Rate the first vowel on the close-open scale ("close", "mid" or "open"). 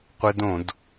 close